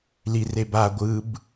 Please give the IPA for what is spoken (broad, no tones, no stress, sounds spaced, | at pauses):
l i r e b a ɡʷ ɯ b